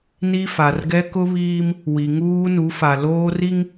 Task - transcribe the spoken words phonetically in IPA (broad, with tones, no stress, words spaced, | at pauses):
ni˦ fa˨rɡɛ˦ kʊ˦βiː˦m | wi˨ŋuː˦nu˨˦fa˨ loː˦ri˦ŋ